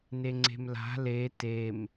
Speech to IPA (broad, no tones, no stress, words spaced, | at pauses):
neŋ͡ǀe̤mla̤ le tem